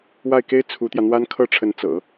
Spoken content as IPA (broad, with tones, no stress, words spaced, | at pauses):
wa˥˩ɪ̯ke˥ɪ̯ t͡sʰu˧˥t̪jä˧n̪wa˥n kʰɤ˥˩ʈ͡ʂʰə˧˥n t͡sɤ̰˨˩˦